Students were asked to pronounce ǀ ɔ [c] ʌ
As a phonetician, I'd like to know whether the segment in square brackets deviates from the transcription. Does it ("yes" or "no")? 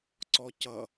no